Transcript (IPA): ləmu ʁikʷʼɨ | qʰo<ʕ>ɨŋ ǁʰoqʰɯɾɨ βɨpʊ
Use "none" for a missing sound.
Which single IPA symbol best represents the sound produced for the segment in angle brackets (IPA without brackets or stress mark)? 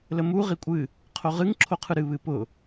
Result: ʁ